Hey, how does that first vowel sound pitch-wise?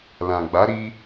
low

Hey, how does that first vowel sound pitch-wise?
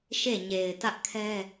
falling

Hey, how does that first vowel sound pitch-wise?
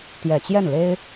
low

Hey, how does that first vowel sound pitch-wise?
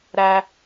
low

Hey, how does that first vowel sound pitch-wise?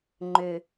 low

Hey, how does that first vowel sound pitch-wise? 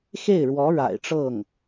falling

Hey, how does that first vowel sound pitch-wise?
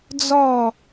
falling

